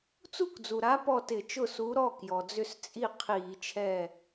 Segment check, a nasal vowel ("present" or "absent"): absent